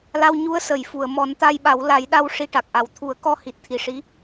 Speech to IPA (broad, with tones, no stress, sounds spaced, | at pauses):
l a˧ w ɲ u˧˥ ə̯ s ə˨˩˨ j f u˨˩˨ ə̯ m ɔ˨˩˦ n t̪ a˧ j ɓ a˨˩˦ w l a˨˩˦ j ɗ a˧ w ʂ i˧ ʈ a˨˩ k̚ ʔ a˨˩ w t̪ʰ u˨˩˦ ə̯ k ɔ˧ h i˨˩ t̚ t̪ʰ i˨˩ ʂ i˧˥